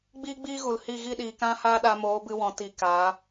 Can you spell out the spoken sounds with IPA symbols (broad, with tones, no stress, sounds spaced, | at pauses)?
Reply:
ɡ͡b iː˦ ɡ͡b iː˦ ɣ u˨ l h i˦˨ ɣ i˦˨ ɗ iː˨ k ã˦ h aː˦ ɗ a˧ m oː˨˦ b ɨ˧ w ɔ̃˨ t i˧ k aː˨˦